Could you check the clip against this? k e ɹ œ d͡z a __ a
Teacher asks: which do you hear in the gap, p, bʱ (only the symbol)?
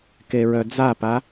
p